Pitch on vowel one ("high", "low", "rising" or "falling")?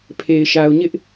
low